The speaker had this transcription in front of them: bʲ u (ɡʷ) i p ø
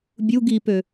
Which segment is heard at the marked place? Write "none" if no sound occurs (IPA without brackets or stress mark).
ɡ